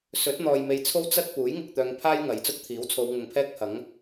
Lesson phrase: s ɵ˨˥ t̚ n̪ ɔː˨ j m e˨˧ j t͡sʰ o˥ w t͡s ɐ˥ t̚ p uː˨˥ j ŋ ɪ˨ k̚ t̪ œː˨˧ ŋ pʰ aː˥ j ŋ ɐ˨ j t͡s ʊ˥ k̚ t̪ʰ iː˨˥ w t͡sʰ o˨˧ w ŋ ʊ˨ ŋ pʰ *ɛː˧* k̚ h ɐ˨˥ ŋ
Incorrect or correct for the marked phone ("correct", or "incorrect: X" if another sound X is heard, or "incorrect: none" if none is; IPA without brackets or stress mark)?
incorrect: ɛː˥